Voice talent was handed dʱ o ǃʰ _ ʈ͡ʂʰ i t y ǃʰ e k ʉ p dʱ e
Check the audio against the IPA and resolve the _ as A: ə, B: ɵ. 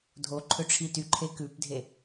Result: B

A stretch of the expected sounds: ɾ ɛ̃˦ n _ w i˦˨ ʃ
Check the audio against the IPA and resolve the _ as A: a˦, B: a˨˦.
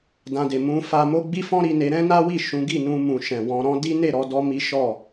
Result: A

